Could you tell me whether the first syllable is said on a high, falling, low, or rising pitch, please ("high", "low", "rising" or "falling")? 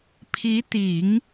rising